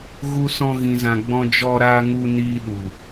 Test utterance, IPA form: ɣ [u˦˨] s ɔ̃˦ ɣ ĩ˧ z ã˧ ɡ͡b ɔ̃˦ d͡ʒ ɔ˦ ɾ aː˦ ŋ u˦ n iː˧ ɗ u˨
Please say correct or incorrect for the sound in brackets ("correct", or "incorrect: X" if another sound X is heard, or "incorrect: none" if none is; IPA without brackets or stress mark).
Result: incorrect: u˦